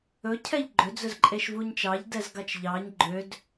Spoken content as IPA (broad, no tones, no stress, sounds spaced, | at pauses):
ɵ cʰ ɛ ʎ ɡ͡ǃ ø d͡z ɵ z ǃʼ e ʃ v u ɲ t͡ʃ ɑ ʎ d ɛ z ɡ ɑ t͡ʃ ʎ ɑ ɲ ɡ͡ǃ ø d